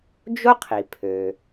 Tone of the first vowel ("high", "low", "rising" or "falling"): high